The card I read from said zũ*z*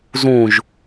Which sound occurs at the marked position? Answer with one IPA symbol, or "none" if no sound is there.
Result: ʒ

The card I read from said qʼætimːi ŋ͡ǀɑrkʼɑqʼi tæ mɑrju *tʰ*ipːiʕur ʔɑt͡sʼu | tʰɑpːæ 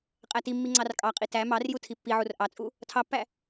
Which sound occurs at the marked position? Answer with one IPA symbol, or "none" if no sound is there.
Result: tʰ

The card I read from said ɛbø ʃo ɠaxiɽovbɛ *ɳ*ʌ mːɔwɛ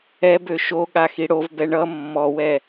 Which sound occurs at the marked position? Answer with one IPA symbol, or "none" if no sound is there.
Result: ɳ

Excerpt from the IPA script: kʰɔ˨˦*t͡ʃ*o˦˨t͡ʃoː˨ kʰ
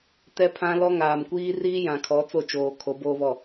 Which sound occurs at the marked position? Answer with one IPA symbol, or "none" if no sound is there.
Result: t͡s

